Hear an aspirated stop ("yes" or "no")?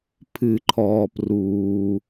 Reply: yes